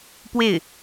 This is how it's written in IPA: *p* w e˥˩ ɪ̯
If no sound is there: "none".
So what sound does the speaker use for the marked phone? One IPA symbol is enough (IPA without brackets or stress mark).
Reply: p